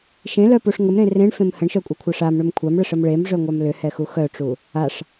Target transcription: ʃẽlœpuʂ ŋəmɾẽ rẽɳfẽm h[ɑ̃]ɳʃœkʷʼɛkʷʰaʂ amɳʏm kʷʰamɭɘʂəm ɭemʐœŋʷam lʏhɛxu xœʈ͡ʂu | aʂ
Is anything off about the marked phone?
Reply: yes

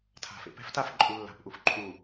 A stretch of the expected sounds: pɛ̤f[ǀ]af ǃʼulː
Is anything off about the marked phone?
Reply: yes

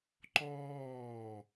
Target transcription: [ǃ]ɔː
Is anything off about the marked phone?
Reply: no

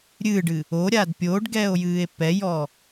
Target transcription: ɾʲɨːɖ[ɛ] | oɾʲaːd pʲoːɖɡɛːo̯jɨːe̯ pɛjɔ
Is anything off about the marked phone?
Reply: yes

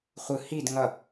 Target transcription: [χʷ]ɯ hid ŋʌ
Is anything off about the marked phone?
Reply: no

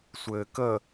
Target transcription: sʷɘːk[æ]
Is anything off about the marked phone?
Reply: yes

